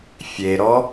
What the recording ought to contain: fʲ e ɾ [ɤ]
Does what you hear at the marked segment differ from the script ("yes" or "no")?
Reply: yes